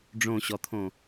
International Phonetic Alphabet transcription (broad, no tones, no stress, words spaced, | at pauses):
ɖ͡ʐõɕɔt̪ʰõ